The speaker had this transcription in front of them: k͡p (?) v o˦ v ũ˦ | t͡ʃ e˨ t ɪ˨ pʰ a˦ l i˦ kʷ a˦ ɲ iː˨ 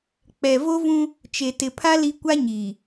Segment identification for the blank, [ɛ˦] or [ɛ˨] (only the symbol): ɛ˨